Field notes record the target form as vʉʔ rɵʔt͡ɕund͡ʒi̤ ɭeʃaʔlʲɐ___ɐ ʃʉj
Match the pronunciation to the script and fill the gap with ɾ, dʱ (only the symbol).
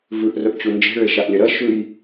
ɾ